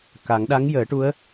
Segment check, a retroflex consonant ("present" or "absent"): present